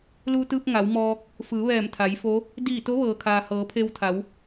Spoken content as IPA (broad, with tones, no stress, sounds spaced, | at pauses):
l uː˧ t̪ ɯː˧ p̚ ŋ a˩˧ w m ɔː˧ k̚ | f ɯː˩˧ ʋ ɛː˧˩ m t̪ʰ a˩˧ j f o˧˥ | d iː˧˩ t̪ o˧˥ ʋ ɤː˩ kʰ aː˩ h ɤː˩˧ pʰ e˧ w t̪ʰ a˩˧ w